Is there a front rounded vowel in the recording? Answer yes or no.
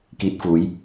no